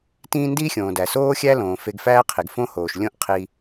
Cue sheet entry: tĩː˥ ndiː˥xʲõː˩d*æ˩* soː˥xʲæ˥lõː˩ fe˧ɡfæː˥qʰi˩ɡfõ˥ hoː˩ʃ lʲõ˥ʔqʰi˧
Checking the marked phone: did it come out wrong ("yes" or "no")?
no